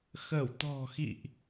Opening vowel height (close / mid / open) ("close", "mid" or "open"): mid